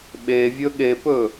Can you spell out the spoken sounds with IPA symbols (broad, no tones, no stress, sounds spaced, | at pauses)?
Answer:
ɓ e vʲ ɵ ɠ e p ɵ